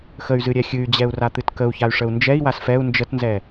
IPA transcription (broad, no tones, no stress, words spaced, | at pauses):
xəy̯zɨ ɾʲɛxʲɨy̯d͡ʑɛu̯ra t̪ɨtkəu̯çay̯ʂəu̯ nd͡ʒɛi̯was fɛu̯ nd͡ʒətnzɛ